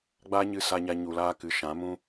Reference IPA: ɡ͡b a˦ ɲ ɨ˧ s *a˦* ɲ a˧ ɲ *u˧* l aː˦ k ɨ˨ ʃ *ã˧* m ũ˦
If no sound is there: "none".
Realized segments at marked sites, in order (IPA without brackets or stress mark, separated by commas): a˧, u˧, ã˨˦